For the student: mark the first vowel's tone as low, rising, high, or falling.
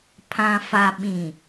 low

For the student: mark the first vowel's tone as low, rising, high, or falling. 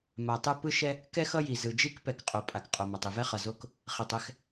low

